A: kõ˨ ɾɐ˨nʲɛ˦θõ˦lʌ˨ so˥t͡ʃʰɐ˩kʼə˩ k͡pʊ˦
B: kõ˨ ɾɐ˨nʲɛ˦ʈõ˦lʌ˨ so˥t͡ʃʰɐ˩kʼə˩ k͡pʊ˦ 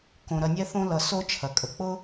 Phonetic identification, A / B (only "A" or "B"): A